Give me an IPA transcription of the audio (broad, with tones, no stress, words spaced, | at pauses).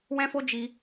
wɛ̃˦fo˦d͡ʒi˧